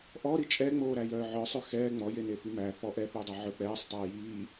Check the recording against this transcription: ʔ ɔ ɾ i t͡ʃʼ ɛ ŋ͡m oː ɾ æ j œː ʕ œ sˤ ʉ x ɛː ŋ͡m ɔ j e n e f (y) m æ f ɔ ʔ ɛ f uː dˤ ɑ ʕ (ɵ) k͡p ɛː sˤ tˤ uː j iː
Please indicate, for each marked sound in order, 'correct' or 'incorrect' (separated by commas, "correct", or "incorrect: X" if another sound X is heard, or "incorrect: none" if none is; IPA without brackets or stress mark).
correct, correct